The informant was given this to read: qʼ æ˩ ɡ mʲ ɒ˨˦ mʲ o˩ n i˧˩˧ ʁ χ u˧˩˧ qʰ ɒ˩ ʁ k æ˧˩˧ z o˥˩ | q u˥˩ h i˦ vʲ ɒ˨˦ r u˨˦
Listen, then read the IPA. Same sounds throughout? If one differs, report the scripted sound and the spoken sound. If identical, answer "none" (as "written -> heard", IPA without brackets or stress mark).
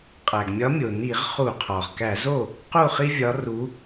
h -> χ